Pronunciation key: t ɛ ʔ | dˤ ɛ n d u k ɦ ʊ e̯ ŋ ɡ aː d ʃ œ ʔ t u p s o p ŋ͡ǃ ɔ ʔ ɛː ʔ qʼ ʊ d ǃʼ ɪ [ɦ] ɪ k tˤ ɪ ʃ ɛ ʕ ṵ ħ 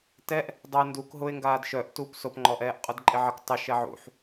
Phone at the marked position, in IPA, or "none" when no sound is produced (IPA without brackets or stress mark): ʕ